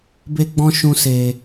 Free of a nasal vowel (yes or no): no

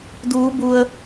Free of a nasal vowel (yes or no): yes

